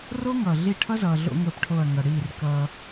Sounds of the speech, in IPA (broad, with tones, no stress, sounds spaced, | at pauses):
r o˦ ŋ ʌː˨ ɮ i˦˨ ʈʰ ʌ˦ z ʌː˨ ɮ o̰˦ ŋ əː˦ p ʈʰ o˦˨ ɐ̯ ŋ ʌ˨ ɽ iː˦˨ r k ʌː˦